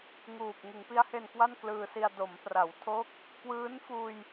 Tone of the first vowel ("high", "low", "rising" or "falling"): low